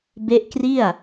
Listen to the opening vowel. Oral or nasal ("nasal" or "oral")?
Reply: oral